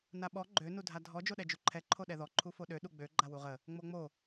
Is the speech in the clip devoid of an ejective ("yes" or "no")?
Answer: yes